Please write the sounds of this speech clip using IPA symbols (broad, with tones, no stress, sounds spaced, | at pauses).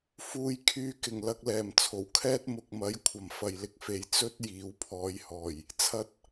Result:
f uː˨ j kʰ yː˨ k ɪ˨˩ ŋ l ɐ˧ k̚ l ɛː˨˩ m t͡sʰ o˨˩ w kʰ ɛː˥ t̚ m ʊ˨ k̚ m ɐ˨˥ j kʷʰ ɐ˨ m f ɐ˨ j l ɪ˥ k̚ f e˧ j t͡s ɵ˥ t̚ j iː˨˥ w pʰ ɔː˨˧ j h ɔː˨˩ j | t͡sʰ ɐ˨˥ t̚